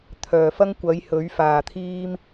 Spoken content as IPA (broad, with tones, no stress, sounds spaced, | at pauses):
t̪ʰ œː˨˩ f ɐ˥ ŋ kʷ ɐ˨˥ j h ɵ˨˥ ɥ f aː˨ t̪ʰ iː˥ m